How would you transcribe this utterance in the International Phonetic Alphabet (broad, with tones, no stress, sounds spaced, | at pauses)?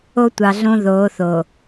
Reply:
o˦ tʷ ɑ˨ ɮ õ˦ ð oː˨˦ θ o˨